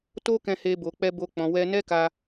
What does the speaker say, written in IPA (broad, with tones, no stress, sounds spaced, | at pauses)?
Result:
t o˦ k ɛ̃˦ h e˦ b o˧ k͡p ɛ˦ b o˦ k͡p ɔ̃˧ w ɛ˦ n ɛ˦ k a˧